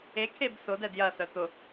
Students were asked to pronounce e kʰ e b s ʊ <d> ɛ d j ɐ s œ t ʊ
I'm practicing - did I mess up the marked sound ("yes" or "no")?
no